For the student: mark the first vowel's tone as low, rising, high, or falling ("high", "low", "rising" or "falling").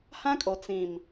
high